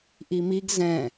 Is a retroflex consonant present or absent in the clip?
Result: absent